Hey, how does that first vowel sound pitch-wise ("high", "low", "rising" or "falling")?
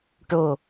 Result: low